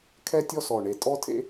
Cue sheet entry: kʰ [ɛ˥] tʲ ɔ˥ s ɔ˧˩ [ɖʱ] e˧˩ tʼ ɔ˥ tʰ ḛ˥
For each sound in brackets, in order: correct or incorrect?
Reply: correct, incorrect: ɳ

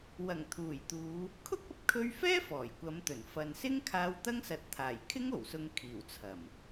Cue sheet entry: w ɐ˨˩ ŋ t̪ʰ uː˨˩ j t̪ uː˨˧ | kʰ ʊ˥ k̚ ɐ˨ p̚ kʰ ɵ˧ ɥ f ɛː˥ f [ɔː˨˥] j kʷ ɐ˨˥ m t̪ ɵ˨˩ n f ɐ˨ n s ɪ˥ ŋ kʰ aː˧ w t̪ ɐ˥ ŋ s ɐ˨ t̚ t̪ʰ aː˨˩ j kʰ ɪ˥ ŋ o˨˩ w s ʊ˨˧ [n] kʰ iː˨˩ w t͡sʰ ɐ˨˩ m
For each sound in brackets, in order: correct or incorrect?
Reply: incorrect: ɔː˨˩, incorrect: ŋ

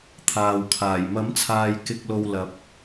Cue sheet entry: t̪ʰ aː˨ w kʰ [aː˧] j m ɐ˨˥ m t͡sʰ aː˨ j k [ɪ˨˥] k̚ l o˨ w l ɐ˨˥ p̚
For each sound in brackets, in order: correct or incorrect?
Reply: incorrect: aː˨˩, incorrect: ɪ˨

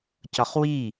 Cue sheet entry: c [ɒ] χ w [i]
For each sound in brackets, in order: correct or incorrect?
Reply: correct, correct

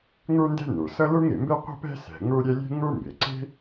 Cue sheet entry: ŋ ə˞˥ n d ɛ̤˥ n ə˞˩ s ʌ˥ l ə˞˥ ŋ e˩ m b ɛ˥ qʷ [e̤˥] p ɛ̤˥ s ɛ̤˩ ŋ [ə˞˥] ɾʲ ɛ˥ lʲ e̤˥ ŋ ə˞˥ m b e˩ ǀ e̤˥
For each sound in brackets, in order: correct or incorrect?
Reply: incorrect: ɛ̤˥, correct

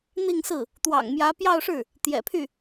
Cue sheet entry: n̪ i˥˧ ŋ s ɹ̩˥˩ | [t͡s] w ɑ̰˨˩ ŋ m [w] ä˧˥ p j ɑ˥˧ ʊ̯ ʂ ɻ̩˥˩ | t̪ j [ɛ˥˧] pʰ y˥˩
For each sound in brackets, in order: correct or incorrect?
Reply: incorrect: t̪, incorrect: j, incorrect: ɛ̰˨˩

